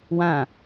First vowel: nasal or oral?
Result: nasal